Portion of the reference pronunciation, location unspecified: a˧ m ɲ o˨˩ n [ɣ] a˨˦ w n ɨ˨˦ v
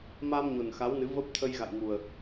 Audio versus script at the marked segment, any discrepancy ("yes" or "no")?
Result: yes